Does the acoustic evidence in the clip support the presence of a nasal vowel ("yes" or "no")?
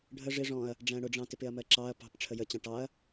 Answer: yes